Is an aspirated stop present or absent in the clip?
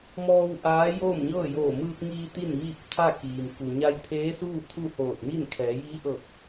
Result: present